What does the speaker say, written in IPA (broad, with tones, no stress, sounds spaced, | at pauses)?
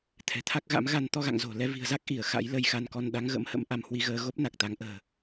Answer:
t̪ʰ ɛ̤˨˩ t̪ʰ a˦˥ k̚ ɣ a̰˧˥ m ɣ a˧ n t̪ ɔ˧ ɣ a̰˧˨ ŋ z o̤˨˩ l ɛ˨˦ v i̤˨˩ ə̯ z a˦˥ k̚ ʔ i˧˩ ə̯ x a̰˧˥ j l ə˧ j x a˧ n k ɔ˧ n ɗ a˨˦ ŋ ɣ ə̰˧˥ m h ə̰˧˥ m ʔ a˧ m h w i˨˦ ɣ əː˧ ɣ o˦˥ p̚ n a˨˩ k̚ t̪ a˨˦ ŋ ʔ ə̤ː˨˩